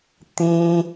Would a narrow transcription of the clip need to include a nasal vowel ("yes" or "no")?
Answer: yes